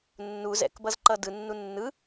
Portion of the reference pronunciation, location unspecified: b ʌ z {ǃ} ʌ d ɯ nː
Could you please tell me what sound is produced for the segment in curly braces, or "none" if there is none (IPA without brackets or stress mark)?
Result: ǃ